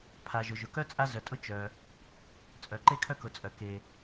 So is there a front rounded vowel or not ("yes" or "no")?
yes